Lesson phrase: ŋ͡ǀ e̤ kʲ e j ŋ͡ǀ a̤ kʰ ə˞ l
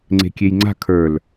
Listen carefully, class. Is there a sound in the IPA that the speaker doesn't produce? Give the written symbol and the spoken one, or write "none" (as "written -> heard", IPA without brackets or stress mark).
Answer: none